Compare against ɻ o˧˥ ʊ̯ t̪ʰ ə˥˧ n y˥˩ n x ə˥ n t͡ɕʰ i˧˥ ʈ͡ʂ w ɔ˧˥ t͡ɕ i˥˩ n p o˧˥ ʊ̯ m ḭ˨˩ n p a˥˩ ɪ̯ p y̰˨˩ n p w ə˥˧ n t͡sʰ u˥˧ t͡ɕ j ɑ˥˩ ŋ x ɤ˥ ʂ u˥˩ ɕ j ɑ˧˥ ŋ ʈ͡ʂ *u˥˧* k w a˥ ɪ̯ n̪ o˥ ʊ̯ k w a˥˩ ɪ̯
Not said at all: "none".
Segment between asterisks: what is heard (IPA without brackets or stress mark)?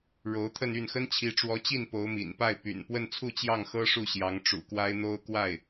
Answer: ṵ˨˩